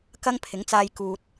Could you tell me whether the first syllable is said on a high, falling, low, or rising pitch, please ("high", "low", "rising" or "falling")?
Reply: high